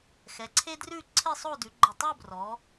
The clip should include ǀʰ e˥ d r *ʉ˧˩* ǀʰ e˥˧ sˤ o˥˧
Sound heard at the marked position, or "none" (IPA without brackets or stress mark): ʉ˥˧